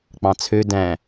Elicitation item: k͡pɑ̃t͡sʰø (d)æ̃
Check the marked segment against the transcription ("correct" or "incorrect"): correct